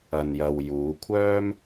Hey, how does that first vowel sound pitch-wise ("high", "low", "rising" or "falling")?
low